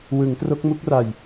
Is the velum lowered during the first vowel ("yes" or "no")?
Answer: no